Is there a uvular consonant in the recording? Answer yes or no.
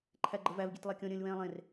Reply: no